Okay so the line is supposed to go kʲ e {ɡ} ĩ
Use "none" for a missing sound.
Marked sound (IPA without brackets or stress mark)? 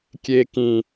k